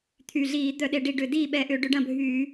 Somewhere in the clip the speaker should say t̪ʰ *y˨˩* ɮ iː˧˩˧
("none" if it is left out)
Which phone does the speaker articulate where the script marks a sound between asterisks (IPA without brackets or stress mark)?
y˨˩